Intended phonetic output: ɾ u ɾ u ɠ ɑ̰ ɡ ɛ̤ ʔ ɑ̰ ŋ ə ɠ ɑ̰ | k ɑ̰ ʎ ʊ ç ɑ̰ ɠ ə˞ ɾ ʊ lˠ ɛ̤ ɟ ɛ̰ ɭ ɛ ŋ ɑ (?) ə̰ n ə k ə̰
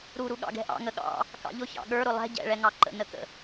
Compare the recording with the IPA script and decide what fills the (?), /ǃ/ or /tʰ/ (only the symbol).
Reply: ǃ